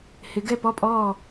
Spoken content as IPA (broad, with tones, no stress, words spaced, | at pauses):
hɪ˩˧ ɡɛ˥˩pɔ˥˩pʼɔː˥˩